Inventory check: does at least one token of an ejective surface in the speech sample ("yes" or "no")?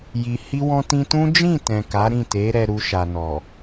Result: no